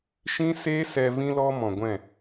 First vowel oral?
no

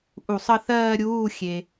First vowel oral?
yes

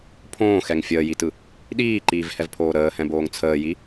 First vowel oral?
no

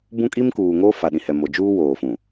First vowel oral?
no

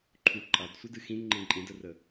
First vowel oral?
yes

